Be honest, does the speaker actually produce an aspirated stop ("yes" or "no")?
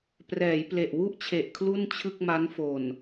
yes